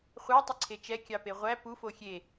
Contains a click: yes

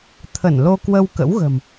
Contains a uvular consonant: no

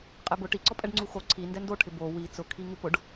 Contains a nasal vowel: no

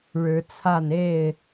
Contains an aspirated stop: yes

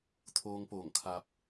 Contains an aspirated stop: yes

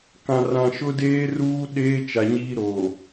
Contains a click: no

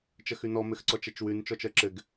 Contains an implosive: no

